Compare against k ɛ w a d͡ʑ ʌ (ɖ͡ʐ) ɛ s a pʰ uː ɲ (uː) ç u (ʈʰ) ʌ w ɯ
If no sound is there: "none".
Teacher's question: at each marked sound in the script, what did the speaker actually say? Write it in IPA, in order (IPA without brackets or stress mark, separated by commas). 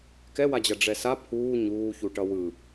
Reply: ɖ͡ʐ, uː, ʈ